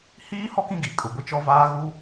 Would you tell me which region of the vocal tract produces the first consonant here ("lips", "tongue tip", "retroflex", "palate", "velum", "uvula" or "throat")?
throat